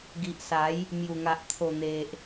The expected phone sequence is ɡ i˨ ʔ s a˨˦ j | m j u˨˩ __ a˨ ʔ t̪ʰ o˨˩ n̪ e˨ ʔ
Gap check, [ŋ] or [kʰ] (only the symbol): ŋ